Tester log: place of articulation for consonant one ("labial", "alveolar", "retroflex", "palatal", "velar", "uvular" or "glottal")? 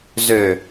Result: alveolar